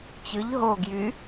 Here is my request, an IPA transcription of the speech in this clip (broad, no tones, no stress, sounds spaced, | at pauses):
t͡ɕ ɯ ʎ ɦ o ɡ j y